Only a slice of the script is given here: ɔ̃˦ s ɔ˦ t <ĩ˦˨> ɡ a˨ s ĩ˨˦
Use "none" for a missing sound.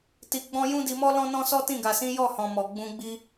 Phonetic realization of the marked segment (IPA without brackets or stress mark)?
ĩ˦˨